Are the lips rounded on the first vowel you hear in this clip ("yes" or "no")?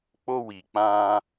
yes